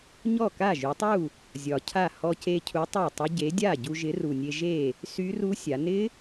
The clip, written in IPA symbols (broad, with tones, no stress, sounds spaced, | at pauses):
ɲ ɔ˥˩ k a˥˩ ʒ y˩˧ tˤ u˥˩ | zʲ ɒ˨˩ cʰ a˥˩ h ɔ˧ c e˧ cʰ u˨˥ tˤ a˥˩ tˤ ɪ˦˥ ɟ e˨˥ dʲ a˥˩ ɟ u˧ ʒ ɪ˨˥ r u˨˩ nʲ e˧ ʒ e˥˩ | s y˦˥ r u˦˥ sʲ a˩˧ n ɪ˦˥